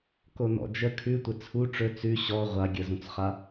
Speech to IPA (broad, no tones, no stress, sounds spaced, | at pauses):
k o n ɔ̰ d͡ʒ ə kʰ ʉ tʷ ə t͡sʰ u ʈ͡ʂ ɵ t͡s ʉ ɕ ɔ ʁʷ a ɡʲ ə z ũ t͡s χ a